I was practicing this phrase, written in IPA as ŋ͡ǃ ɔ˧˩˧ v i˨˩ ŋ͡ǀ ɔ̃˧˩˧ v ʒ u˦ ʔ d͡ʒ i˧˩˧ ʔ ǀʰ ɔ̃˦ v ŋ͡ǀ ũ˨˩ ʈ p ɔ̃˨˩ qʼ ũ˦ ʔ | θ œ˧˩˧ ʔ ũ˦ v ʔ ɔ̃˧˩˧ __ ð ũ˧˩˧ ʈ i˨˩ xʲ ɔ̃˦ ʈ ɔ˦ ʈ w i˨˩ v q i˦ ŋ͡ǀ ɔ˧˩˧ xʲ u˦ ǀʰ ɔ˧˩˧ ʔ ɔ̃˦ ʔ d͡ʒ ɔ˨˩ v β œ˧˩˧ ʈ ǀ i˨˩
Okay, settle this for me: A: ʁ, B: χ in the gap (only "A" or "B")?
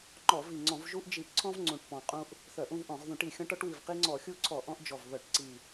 A